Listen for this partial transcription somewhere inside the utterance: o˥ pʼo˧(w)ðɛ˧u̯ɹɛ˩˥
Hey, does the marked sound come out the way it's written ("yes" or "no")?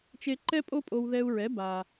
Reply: yes